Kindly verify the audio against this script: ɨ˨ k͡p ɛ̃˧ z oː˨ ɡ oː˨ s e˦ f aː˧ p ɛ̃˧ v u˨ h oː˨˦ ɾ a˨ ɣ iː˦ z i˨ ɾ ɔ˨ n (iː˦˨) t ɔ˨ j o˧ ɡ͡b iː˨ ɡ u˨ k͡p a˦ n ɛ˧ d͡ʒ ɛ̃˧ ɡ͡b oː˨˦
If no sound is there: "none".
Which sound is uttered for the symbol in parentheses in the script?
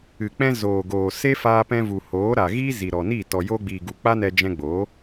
iː˦˨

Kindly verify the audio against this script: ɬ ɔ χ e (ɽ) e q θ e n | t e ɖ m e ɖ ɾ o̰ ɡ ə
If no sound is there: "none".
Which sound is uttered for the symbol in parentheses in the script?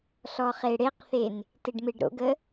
ɽ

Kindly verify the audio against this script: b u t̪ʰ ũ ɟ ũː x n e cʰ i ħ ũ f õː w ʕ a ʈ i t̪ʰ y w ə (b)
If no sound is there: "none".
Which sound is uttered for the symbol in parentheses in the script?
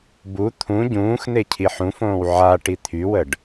ɖ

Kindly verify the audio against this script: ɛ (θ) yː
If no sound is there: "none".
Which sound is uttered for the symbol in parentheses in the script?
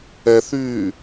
θ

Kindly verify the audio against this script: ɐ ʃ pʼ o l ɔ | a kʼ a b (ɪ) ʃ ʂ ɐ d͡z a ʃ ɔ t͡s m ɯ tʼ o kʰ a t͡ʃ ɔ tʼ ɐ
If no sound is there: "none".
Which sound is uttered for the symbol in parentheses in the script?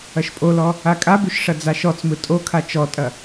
y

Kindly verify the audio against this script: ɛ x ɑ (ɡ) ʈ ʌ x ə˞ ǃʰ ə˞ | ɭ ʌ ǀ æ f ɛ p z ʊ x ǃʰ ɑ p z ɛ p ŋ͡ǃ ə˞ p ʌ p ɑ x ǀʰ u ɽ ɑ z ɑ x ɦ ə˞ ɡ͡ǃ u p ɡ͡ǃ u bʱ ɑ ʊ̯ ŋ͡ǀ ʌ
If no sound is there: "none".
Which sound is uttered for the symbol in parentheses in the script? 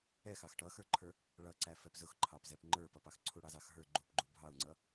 x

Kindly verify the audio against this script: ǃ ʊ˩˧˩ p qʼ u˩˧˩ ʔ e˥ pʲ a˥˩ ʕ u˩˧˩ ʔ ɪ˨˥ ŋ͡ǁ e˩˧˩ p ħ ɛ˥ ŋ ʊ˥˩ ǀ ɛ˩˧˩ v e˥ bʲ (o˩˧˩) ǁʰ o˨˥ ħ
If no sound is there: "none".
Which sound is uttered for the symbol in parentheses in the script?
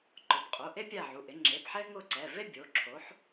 o˩˧˩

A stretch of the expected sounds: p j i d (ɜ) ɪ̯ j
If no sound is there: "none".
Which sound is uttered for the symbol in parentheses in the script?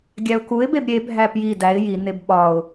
æ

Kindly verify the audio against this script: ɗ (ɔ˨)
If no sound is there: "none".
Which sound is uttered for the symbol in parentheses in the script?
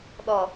ɔ˨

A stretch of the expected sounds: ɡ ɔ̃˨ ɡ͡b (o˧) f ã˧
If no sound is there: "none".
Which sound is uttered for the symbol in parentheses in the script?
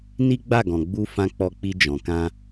u˧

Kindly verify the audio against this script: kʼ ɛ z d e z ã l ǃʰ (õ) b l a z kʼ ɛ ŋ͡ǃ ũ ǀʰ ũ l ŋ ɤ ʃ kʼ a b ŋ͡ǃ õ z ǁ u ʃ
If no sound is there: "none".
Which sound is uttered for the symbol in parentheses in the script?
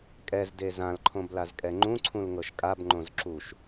õ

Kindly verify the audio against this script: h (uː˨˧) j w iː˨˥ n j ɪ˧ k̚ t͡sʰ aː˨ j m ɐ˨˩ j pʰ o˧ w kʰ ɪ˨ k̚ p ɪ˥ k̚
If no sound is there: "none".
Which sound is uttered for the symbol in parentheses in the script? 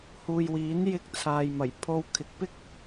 uː˨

